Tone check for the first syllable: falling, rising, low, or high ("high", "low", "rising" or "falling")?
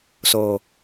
low